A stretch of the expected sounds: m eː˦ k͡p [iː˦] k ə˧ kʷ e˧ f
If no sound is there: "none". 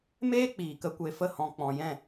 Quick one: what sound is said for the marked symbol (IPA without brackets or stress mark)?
iː˨